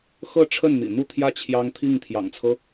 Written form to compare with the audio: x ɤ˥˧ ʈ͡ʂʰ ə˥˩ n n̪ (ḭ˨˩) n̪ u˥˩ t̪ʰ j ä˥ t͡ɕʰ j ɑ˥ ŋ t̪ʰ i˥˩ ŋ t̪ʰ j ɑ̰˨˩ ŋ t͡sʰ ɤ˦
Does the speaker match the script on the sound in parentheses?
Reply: yes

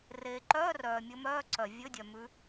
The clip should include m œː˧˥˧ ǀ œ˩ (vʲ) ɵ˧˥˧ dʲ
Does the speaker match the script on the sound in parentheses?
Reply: yes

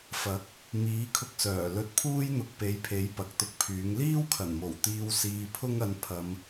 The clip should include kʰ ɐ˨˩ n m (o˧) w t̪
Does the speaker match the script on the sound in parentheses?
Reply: no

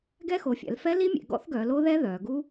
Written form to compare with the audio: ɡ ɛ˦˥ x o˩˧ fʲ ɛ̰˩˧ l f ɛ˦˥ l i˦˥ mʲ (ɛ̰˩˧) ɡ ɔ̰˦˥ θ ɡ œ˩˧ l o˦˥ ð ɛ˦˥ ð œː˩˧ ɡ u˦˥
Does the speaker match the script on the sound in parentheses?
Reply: no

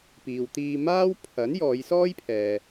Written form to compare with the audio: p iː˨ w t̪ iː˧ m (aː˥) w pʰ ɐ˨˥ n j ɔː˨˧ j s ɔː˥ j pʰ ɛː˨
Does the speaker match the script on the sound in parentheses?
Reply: yes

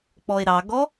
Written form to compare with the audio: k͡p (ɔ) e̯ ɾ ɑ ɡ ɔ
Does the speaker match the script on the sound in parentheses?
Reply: yes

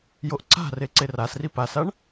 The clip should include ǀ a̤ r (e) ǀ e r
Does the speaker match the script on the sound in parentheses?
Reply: yes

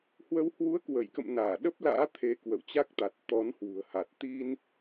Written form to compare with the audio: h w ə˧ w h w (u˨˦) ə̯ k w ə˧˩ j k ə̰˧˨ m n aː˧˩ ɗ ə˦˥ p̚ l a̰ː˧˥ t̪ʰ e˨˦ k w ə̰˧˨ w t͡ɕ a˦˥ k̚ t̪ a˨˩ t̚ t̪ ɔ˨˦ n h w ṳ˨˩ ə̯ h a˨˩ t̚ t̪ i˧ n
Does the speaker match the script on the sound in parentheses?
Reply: yes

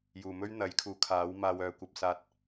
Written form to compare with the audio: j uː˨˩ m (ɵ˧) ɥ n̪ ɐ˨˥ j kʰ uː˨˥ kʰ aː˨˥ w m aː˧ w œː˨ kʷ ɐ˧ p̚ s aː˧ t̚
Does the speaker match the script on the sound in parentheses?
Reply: no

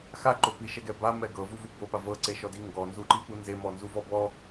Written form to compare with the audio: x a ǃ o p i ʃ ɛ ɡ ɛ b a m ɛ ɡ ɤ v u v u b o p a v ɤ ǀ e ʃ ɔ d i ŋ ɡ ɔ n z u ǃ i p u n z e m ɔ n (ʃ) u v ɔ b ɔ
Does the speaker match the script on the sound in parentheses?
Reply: no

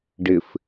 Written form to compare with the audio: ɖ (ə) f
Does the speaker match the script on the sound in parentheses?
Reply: no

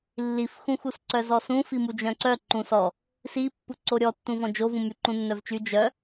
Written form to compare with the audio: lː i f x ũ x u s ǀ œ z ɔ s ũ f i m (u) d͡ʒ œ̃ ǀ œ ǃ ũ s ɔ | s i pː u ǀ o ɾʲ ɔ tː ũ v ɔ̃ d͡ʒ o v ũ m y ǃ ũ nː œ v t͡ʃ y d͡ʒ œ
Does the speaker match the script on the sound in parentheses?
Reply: yes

